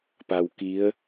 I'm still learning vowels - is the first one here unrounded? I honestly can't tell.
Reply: yes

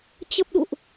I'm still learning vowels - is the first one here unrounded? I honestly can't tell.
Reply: yes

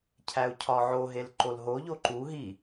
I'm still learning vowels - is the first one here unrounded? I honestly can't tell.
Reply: yes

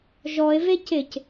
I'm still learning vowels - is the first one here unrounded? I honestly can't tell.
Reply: no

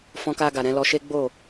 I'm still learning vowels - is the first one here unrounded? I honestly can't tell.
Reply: no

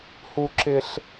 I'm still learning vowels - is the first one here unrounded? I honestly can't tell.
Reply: no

